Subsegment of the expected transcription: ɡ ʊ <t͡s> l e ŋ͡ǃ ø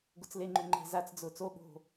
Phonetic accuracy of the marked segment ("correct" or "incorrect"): correct